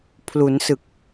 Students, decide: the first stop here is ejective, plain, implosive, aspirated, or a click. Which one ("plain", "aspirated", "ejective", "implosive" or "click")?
aspirated